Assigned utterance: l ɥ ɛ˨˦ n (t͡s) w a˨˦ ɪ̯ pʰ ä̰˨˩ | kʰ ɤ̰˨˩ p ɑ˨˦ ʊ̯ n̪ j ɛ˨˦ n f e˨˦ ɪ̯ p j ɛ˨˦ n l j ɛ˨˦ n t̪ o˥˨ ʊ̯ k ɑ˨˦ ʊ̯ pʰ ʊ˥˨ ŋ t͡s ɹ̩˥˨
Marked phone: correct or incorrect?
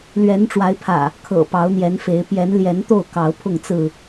incorrect